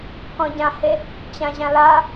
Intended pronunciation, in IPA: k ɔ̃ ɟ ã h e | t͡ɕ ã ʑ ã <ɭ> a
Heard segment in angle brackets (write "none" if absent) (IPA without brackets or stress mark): l